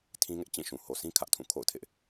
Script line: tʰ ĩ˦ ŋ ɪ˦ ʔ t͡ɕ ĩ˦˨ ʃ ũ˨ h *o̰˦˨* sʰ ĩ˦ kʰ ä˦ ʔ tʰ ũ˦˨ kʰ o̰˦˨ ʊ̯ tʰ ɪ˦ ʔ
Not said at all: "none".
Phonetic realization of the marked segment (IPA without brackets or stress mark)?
o˨